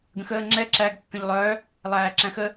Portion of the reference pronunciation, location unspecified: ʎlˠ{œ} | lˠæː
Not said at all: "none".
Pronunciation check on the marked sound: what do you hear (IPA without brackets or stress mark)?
œ